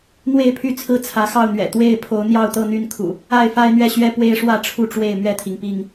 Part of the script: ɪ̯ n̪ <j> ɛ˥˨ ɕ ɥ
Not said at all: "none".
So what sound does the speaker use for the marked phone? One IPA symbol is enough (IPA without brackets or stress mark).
ɥ